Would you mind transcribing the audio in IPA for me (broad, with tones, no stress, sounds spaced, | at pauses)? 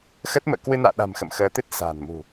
x ə˦˥ t̚ m ə̰ː˧˨ k w ɨ˧ n a̰ː˧˨ ɗ a̤˨˩ m x ə̰˧˨ m x əː˨˦ t̪ ɨ˦˥ t̚ s a̤ː˨˩ n m ṳ˨˩